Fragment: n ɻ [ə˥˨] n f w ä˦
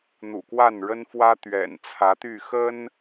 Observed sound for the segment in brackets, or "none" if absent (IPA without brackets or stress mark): ə˦